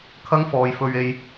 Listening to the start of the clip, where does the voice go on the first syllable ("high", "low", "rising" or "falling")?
high